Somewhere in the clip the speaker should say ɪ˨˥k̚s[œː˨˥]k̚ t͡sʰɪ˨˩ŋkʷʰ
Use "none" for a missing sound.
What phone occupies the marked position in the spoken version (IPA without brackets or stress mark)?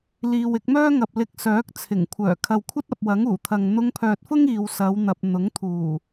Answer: œː˨˥